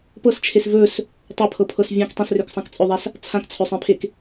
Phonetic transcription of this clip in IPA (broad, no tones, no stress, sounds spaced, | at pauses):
p ɤ s t͡ʃʰ e s v ɵ s | tˤ ɐ pʰ ɤ pʰ ɤ s vʲ ã k tˤ ẽ s r ø k sˤ ã k t͡sʼ ɵ ðˤ a s | t͡sʰ ã k t͡sʰ ɵ sˤ ẽ pʰ e k